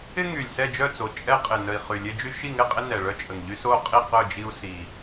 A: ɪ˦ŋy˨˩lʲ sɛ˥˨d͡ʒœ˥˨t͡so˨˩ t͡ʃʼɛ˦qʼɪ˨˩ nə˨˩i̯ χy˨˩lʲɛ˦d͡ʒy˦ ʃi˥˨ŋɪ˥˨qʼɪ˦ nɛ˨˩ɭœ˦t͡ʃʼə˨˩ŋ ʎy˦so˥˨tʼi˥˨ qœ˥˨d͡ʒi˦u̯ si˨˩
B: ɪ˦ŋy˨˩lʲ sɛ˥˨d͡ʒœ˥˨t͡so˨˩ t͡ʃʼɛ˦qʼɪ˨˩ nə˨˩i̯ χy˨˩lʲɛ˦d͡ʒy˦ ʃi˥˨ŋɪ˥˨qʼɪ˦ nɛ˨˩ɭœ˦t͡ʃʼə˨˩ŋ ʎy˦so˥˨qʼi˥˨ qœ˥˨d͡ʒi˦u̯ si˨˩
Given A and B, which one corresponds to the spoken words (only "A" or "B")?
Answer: B